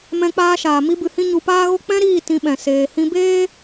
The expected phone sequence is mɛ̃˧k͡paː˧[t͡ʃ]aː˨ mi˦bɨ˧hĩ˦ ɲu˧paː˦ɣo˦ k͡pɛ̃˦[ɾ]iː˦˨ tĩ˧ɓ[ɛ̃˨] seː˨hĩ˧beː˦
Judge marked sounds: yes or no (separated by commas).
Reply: no, yes, yes